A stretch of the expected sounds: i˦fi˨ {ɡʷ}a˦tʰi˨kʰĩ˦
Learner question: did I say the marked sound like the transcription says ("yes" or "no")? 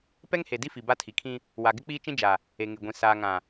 no